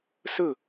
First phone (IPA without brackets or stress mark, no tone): s